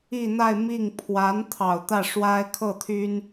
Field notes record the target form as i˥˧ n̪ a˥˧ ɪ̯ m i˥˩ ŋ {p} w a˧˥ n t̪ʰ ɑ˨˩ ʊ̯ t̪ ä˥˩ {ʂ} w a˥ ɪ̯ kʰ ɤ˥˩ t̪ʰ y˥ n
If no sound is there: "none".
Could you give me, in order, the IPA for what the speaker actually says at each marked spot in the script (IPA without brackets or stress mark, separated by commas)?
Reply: pʰ, ʂ